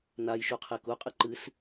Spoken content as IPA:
najʃu qʰekuqʼɨ ǃɨs

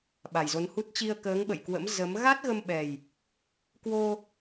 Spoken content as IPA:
ɓa˨˩jzo˨˦nhu˦˥t̚ t͡ɕi˧ə̯kəː˨˦ŋɓə̰˧˨jkwə̰˧˥m zə˨˦m ɣa˦˥t̚ɣə˧mɓɛ˨˩j | kwo˧

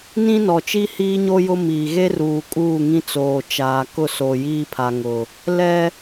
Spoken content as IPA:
nĩ˦nɔ˨t͡ʃi˦ hiː˦ɲo˦ jʊ˦miː˨ ɣe˦ruː˨ kʼuː˦˨ŋĩ˦t͡soː˨ t͡ʃaː˨kʊ˦˨ soː˨jiː˦pʰa˨ ŋʊ˨ | lɛ˦

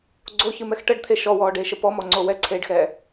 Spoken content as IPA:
ɡ͡ǀoçɨmɛx ʈəɖt̪ʰe ʃɔwɔːɖeːʃə pɔmɔŋ͡ǀo wɛǀʰeːɖxɛː

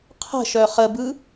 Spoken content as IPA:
qʰə̤ʃœ χəbɯ

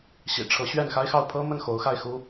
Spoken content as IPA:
ɕḭ˨˩ʈ͡ʂʰɤ˧˥ ɕɥɛ˥˩nxa˥ɪ̯xɑ˥˩ʊ̯ pʰɤ˥mə˥˩n xo˧˥ʊ̯xa˥˩ɪ̯xu˥

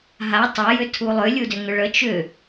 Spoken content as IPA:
ɦa tˤa jʏtʰulˠʏ lʲudʏŋʏɭə t͡ʃʏ

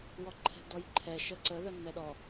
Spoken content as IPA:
wɔǃʰɛ̤dɔjǃʰɛ ʃəǀə ðənːɛɗɔ

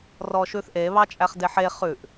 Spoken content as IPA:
rɔʃʉθʔe βɑt͡ʃʼæχdeħe χʉʔ

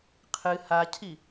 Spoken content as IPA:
qʰɨ hacʰi

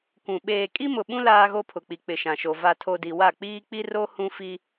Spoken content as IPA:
kʷũ˨ ɓeː˨ kʼi˦mʊ˨ɓũ˦ laː˦ɣo˦pʰʊ˨k͡pi˨ k͡pɪ˨ʃã˨ʃo˨ va˨tʰo˨ di˨wa˦˨k͡piː˦ k͡pi˦ro˦ hũ˦fi˦

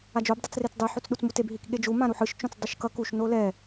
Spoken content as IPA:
ad͡ʒob dˤɯt͡sret͡sdˤɯ ħut͡sɗut͡smuteb ɦikɠed͡ʒu mãɾuħɯʃ t͡ʃõt͡sdˤuʃkʌ kuʃ nolɛ

